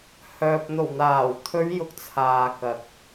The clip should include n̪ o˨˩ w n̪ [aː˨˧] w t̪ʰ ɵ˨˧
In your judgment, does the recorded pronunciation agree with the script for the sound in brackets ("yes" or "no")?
no